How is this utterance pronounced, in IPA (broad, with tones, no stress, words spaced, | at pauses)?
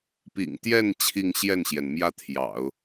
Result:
pḭ˨˩ŋt̪jɛ˥˧n t͡ɕʰi˥˧ŋɕjɛ˥˩nɕjɛ˩nmjä˥˩ t̪ʰjɑ̰˨˩˦ʊ̯